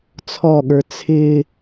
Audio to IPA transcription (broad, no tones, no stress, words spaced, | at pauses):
t͡sʰɔɠə˞ t͡sʰɪ